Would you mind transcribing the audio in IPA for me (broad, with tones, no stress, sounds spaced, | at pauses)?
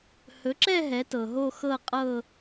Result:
h ɵ˩˥ ǁ ɛ˥˧ ɦ ɛ˩˥ t ɤ˩ ɦ o˥˧ x ɤ˥˧ qʼ ɤ˥˧